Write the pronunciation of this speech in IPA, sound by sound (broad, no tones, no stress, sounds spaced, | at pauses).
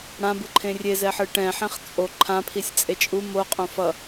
ɽ ã b ɯ ǃʰ ẽ rʲ e z ɛ ħ ɯ ʈ ɛ̃ ħ ẽ χ t͡sʼ o ǃʰ ã pʰ i sʲ t͡sʼ e t͡ʃʼ u m o qʼ õ f ʌ